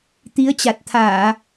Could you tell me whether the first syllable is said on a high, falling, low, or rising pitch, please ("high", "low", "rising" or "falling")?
rising